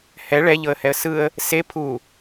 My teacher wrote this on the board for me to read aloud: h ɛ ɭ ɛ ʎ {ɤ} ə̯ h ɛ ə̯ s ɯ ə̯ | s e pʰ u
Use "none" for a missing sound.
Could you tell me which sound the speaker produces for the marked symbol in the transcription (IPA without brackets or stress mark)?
ɤ